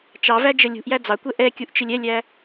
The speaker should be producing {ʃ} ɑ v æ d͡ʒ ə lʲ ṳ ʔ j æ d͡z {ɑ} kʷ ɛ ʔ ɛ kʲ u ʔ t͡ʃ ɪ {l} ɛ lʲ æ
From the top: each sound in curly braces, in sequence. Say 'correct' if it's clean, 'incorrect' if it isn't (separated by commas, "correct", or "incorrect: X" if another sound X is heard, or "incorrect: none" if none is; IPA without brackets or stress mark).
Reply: incorrect: t͡ʃ, correct, incorrect: lʲ